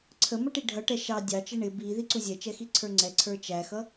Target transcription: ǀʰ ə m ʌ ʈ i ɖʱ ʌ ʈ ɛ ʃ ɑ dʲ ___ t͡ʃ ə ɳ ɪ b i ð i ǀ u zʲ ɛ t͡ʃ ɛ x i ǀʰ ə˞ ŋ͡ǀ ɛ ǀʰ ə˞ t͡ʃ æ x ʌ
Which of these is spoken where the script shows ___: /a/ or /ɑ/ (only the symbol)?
ɑ